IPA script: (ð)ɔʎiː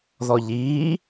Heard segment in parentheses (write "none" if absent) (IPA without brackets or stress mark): ð